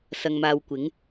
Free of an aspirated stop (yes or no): yes